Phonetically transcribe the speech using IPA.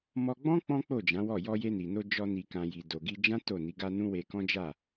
mɔ˧ɡ͡bɔ̃˦ k͡pɔ̃˦k͡po˦˨d͡ʒã˨˦ wɔ˦˨ jɔ˧je˧ni˨no˧ d͡ʒɔ˧ ni˨kã˨ ji˨do˨ɡi˧d͡ʒã˦ to˦˨ni˨˦ɡa˦ nũ˦we˧kɔ̃˦d͡ʒa˦˨

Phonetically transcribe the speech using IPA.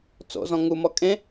t͡so̰zɔ̃ ŋumɔ kʼẽ

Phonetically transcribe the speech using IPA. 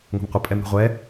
ŋʷe̤mqʷɪ pʼɛmɾṳʁʷɛ

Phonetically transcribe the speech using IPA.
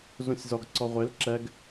zũsʲzɔɡ ǀɔʁʷel ǁɛɡ

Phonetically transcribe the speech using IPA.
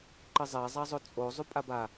ǃɘzˤɛ zˤazˤot͡sʼo zˤupʼaba

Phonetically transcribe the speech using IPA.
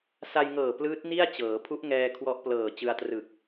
sa˧jŋɤː˨˩ plɯː˦˥t̚ni˥˩a̯ t͡ɕɤː˩˦ pʰu˦˥ʔ ŋɛː˧ kʰwɔ˦˥ʔplɤː˨˩t͡ɕɯ˧a̯trɯ˨˩k̚

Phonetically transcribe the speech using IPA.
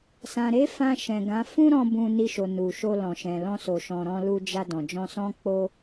sã˨ɾe˨˦ fã˧ʃɛ̃˨ɡã˨˦ fũ˦ɾɔ̃˧ bũ˧ni˧ʃo˨ nu˨ʃo˧lɔ̃˨ ʃɛ̃˨ lɔ̃˧so˨ ʃɔ̃˨ɾɔ̃˧ lu˧d͡ʒa˧ dɔ̃˨d͡ʒɔ̃˧sɔ̃˦ k͡po˦

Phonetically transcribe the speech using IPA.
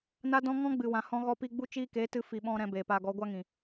na˦dɔ̃˦ ŋɔ̃˦ɡ͡bɨ˨wã˨ hɔ̃˧ɣɔ˧pi˧ɡ͡bu˦ t͡ʃiː˧keː˨˦ tɨ˧ fi˨ɓɔ̃˧ ɾɛ̃˧beː˨paː˧ɡɔ˨˦ ɡʷa˦ŋĩ˨

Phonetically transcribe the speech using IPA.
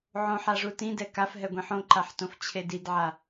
ʕõ ħaʐutĩdɛ kafɦɛ ɡʷĩħõǃaħtõf t͡ɕʰedidʕa

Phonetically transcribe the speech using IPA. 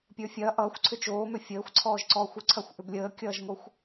pʲə˞fʲɐː ʔʌːxʷ ǀʰʏt͡ʃoːmʏ fʲəːxʷ ǀʰɔːʒǀɔːxʷʏǀʰɐxʷ ʔʏblʲəːkʲʌːʒŋoxʷ

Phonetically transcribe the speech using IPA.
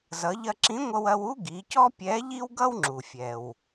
zʌ˩˧ʎɐ˧ǁĩ˧˥ŋʷʌ˧w ɐ˧wu˥ ɡi˩˧cɔ˥ pʲɛ˧˥ ʎi˥wɡʌ˥wŋ͡ǁu˩ fʲɛ˩w

